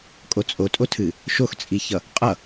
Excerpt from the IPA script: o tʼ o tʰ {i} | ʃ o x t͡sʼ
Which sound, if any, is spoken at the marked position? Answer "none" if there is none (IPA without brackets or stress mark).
ɨ